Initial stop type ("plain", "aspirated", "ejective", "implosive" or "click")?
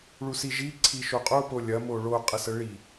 click